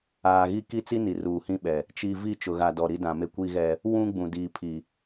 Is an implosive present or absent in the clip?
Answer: present